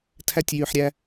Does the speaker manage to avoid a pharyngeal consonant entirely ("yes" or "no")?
no